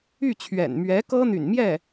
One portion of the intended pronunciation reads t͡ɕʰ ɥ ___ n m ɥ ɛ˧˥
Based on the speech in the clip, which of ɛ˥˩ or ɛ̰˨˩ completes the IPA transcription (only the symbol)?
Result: ɛ̰˨˩